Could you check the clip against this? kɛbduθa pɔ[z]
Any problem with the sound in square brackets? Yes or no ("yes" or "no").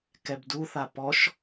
yes